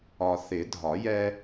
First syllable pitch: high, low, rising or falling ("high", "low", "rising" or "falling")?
low